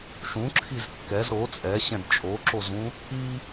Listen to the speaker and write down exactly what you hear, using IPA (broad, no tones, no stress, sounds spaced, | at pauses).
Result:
ʃ ũ ǁʰ i z kː ɛ z ɾ o t͡sʼ ɛ ɕ ɛ̃ d t͡ʃʼ o ǁ o z ũ | i